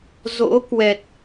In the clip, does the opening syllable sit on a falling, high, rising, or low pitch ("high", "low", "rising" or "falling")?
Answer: rising